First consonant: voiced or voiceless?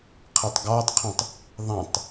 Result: voiceless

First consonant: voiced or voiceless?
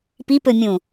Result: voiceless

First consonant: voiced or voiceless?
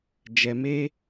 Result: voiced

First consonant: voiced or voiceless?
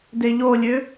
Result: voiced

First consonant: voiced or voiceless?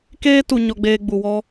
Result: voiceless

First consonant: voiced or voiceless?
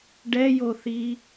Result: voiced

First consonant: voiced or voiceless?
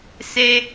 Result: voiceless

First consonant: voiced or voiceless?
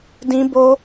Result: voiced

